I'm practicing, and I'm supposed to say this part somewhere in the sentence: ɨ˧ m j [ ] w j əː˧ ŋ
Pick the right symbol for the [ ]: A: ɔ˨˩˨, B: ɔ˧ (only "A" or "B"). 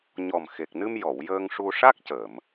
A